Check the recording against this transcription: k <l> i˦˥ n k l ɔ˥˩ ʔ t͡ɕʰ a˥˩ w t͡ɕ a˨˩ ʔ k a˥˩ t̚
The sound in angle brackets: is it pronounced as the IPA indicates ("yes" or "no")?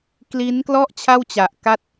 yes